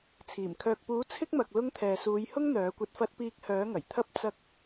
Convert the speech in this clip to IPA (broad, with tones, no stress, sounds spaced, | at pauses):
t͡sʰ iː˨˩ m kʰ œː˨ k̚ p uː˨˥ t͡sʰ ɪ˥ k̚ m ɐ˨ k̚ l ʊ˥ ŋ t̪ʰ ɛː˨ s uː˨˧ j h ʊ˥ ŋ n̪ œː˨˥ kʷ ɐ˧ t̚ f ɐ˥ t̚ p iː˧ k̚ h œː˨˥ ŋ ɐ˨˩ j t̪ʰ ɐ˥ p̚ t͡s ɐ˥ k̚